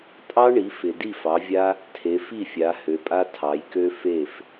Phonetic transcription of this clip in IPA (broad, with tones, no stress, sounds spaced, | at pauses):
tʼ ɑ˦ ɳ i˩˧ f ɪ˩ d i˥˩ f ɑ˩˧ vʲ a˦ | tʰ e˩˧ f i˥˩ fʲ a˩˧ h ø˩˧ pʼ a˦ tʰ ɑ˩˧ j k ø˦ f e˥˩ f